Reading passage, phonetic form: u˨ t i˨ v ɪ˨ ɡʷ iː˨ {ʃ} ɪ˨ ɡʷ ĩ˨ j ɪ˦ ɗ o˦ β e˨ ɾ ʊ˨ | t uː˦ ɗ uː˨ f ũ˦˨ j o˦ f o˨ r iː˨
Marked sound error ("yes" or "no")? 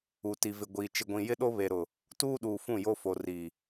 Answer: yes